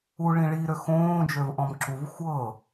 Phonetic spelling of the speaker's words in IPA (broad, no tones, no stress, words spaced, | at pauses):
u ɭĩɭiɾø xõːd͡ʒøv ʔɔ̃mǁuv xʷɤː